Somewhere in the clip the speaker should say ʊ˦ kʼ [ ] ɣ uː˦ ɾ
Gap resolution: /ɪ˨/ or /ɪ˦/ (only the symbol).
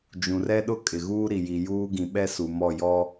ɪ˨